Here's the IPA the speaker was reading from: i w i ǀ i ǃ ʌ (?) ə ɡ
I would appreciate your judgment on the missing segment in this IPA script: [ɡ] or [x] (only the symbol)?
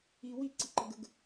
ɡ